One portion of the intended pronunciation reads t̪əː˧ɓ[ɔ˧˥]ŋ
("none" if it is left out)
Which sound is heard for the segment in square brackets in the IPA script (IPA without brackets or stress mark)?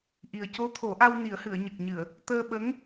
ə˧˥